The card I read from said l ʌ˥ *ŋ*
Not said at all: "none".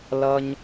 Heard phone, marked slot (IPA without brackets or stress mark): ɲ